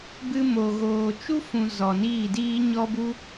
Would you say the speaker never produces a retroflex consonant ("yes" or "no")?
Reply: yes